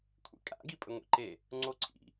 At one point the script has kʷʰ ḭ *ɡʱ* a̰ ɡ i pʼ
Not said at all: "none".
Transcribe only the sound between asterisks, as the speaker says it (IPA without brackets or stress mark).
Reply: kʼ